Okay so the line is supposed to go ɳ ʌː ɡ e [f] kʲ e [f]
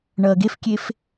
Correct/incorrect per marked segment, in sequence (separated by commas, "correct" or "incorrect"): correct, correct